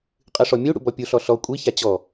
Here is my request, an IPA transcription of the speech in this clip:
qʼ ɨ ʂ ɔ mʲ u ɽ ṵ b ɔ pʲ u ɬ ɔ ɬ ɔ kʷʼ i ç a t͡ɕ ɔ

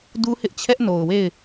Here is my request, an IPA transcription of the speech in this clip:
d u˦ h ɪ˦ ʔ t͡ɕʰ ɛ˦ ʔ n o˨ ʊ̯ w e˦˨ ɪ̯

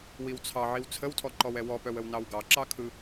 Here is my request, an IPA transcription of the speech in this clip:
w i w t͡sʰ ɑ ʕ i w t͡sʰ ə w tʰ ɔ ǃ ɔ w ɛ w ɔ p œ w ə w n ɑ w ɡ ɑ ǁ ɑ kʰ ɯ

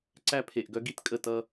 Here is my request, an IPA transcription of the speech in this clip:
ǀ æ˦ pʰ e˨ ʔ ɡ œ˦ ɡ i˦ t kʼ ə˦˨ t ʌ˦

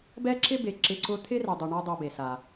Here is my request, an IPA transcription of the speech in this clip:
b ɛ˥ ǁ ɪ˥ b e˨ ǁ ɪ˦ ǀ ʊ˥ t̪ʰ ɪ˥ r ɛ˨ dˤ u˨ ɳ a˦ dˤ u˨ b e˩ s a˩

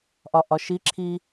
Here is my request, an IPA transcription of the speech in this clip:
ʔ ɒ ʔ ɒ ʃ i ǁʰ i

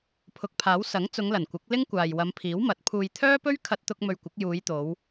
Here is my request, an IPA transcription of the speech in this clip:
pʰ ʊ˨˥ k̚ pʰ aː˨˥ w s ɐ˨˥ ŋ t͡s ʊ˨˧ ŋ l ɐ˨˩ n kʷ ɪ˨˥ k̚ l ɪ˥ ŋ kʷ aː˨ j w ɐ˨˧ m pʰ iː˨˥ w m ɐ˨˥ t̚ pʰ uː˨ j t̪ʰ œː˥ p ɵ˥ ɥ kʰ ɐ˧ t̚ t̪ ʊ˧ k̚ m ɵ˧ ɥ kʷ ɪ˨˥ k̚ j uː˨˧ j t̪ o˨˧ w

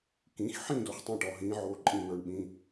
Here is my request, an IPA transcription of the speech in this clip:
k ĩ˩˧˩ x ħ ĩ˥˩ d o˨˦ χ tˤ ẽ˥˩ ʈ ɔ˩˧˩ ɦ ĩː˨˦ ʕ oː˨˦ ǃʼ ĩ˧˩ n̪ ə˞˨˦ ɳ ɓ ĩ˩˧˩

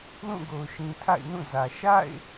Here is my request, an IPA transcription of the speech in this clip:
l ũ˦˨ ɡ o˨ ʊ̯ ʃ ĩ˨ tʰ a̰˦˨ ɪ̯ n ũ˦˨ z ä˨ ʃ a̰˦˨ ɪ̯

